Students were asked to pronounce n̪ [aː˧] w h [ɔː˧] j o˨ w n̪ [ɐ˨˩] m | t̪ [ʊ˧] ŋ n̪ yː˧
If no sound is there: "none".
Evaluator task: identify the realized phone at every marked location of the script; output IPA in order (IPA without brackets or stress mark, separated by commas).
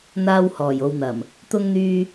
aː˧, ɔː˨˩, ɐ˨˩, ʊ˧